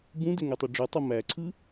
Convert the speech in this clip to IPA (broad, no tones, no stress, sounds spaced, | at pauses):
b ũ d ø ŋ y tˤ y ɖ͡ʐ ɯ tˤ u m æ ǀʰ ɯ